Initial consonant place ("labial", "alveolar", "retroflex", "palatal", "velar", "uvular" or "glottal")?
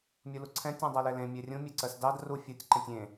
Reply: labial